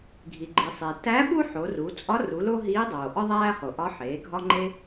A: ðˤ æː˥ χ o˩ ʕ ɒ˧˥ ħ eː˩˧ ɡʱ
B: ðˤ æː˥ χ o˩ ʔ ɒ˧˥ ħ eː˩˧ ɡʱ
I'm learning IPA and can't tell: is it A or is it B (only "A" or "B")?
B